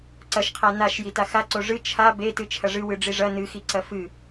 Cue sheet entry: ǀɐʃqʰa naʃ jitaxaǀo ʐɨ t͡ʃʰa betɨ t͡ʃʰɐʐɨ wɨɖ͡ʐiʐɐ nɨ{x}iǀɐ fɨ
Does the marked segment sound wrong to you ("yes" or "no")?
no